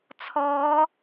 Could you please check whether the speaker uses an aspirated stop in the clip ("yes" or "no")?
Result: yes